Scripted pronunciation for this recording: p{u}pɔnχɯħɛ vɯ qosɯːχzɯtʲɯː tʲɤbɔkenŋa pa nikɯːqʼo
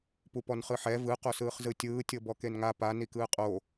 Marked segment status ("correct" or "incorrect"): correct